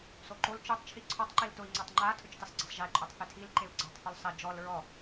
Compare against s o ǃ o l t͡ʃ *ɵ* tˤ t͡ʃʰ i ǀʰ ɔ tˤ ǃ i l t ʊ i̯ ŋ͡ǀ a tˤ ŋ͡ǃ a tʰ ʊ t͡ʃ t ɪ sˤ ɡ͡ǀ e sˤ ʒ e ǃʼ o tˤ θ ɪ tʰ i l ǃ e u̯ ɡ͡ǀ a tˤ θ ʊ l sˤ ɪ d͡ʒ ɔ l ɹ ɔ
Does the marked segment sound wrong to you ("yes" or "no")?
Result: yes